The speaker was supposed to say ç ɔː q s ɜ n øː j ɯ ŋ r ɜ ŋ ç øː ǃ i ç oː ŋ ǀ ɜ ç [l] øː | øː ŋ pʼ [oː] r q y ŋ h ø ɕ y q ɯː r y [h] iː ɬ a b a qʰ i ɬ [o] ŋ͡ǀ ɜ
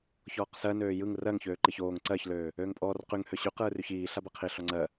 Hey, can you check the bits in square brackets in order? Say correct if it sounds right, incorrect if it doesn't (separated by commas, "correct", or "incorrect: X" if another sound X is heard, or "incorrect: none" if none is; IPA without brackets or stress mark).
correct, incorrect: ɔː, incorrect: ç, incorrect: ɔ